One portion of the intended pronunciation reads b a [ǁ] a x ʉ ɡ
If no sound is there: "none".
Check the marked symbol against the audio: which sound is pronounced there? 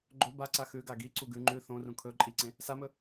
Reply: ǀ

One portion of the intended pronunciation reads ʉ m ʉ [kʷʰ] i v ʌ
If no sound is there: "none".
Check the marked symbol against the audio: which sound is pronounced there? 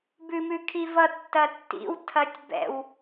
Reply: kʰ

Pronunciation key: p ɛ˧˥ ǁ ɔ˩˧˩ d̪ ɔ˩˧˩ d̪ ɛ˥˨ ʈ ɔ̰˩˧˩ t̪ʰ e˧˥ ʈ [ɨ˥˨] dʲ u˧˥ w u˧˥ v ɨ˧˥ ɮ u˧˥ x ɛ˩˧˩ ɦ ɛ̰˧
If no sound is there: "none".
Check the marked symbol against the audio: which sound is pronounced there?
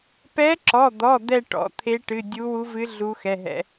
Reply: ɨ˩˧˩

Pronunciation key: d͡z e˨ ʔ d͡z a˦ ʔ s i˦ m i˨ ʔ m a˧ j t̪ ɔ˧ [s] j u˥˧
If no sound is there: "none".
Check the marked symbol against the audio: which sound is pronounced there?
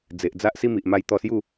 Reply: s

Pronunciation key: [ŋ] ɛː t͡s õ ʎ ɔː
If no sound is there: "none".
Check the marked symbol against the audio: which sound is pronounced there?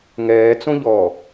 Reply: ŋ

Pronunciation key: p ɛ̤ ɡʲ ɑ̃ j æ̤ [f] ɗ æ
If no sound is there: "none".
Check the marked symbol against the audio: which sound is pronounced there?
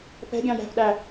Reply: f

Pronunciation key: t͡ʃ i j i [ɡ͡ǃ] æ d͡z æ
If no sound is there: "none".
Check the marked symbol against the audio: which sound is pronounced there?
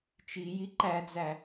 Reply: ǃ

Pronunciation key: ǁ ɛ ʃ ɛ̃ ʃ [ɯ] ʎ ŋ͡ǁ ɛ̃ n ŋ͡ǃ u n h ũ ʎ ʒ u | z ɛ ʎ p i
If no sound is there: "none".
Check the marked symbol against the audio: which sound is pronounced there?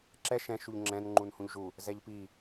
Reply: u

